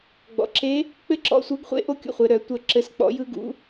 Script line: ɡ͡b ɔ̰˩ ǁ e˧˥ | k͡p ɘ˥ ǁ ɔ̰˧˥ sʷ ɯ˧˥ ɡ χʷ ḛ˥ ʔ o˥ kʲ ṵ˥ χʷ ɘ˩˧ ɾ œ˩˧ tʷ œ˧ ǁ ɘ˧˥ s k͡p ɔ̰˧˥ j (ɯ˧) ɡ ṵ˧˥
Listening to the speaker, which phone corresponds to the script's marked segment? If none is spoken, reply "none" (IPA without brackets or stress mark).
ɯ˥